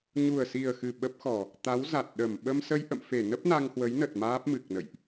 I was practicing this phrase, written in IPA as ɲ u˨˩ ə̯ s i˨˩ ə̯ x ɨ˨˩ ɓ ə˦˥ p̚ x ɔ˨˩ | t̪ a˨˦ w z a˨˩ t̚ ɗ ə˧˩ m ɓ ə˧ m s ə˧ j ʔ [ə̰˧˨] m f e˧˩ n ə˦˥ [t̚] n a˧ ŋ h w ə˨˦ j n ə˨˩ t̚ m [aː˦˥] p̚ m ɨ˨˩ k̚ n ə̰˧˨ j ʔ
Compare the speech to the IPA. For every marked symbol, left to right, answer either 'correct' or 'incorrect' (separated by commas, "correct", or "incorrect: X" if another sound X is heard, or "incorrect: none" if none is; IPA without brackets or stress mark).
correct, incorrect: p̚, correct